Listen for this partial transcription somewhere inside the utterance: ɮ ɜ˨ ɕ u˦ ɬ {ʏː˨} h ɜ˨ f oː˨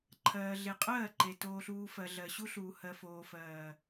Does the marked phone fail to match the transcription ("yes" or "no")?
yes